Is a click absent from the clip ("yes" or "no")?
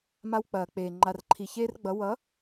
no